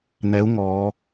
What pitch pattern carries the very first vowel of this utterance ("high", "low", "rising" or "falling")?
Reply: rising